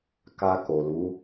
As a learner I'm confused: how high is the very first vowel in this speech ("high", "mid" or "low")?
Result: low